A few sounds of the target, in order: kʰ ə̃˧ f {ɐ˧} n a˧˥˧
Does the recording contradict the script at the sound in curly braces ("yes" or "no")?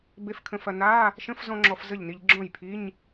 no